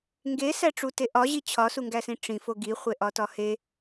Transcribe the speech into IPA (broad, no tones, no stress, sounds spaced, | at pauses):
ŋ ɡ e s æ ʈ͡ʂ u t e ʔ ɒ ʑ i t͡ɕʰ ɒ s u ŋ ɡ æ s ĩ ʈ͡ʂ ĩ f o ɡ i χʷ e ʔ ɒ t ɒ h e